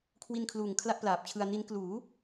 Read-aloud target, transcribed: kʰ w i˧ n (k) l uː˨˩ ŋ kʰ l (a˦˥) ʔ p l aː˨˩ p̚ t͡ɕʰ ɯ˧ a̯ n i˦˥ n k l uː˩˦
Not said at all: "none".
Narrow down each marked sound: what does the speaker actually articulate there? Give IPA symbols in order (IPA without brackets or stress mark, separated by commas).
kʰ, a˦˥